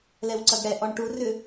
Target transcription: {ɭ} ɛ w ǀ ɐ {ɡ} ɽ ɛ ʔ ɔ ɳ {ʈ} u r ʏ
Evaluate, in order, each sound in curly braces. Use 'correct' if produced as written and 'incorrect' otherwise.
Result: incorrect: l, correct, correct

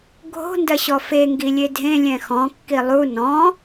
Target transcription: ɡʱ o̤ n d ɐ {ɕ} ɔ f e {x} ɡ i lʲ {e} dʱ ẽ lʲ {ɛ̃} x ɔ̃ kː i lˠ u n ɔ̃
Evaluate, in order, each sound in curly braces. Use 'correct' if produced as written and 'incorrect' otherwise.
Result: correct, incorrect: ŋ, correct, correct

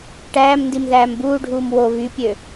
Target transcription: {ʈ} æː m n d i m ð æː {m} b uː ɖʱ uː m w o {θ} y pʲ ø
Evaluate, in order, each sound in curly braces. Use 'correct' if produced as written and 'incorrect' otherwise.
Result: correct, correct, incorrect: β

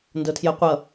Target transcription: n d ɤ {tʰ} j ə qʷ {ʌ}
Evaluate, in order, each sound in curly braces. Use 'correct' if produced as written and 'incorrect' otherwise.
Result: correct, correct

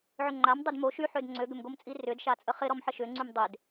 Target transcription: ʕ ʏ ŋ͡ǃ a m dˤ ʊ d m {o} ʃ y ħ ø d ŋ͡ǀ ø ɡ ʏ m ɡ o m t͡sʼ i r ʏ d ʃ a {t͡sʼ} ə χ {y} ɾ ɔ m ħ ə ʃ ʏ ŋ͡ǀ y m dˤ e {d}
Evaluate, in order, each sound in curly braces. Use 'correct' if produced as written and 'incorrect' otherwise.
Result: correct, correct, incorrect: ɪ, correct

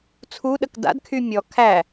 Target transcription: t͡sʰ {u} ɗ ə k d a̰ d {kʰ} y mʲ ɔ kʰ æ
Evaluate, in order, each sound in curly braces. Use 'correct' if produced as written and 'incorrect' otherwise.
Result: correct, correct

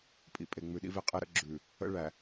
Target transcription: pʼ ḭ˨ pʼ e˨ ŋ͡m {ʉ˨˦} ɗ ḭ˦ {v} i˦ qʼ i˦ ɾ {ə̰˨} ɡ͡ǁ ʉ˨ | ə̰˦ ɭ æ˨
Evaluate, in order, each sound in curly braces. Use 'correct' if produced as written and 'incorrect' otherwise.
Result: incorrect: ʉ˨, correct, incorrect: ə̰˦

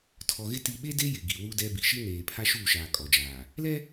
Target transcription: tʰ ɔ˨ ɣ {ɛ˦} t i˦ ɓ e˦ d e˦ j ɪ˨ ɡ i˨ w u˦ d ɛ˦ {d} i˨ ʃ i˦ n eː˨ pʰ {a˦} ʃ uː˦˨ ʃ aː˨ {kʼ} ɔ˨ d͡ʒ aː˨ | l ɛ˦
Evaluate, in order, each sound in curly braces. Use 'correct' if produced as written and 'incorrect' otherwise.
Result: incorrect: ɪ˦, incorrect: b, correct, correct

